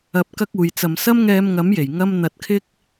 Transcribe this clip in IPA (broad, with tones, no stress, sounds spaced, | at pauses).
ɐ˨˥ p̚ k ɐ˥ k̚ uː˨ j t͡s ɐ˨ m s ɐ˥ m ŋ ɛː˧ m ŋ ɐ˨˥ m j e˨˩ j ŋ ɐ˥ m n̪ ɐ˨˥ t̚ kʰ ɪ˥ k̚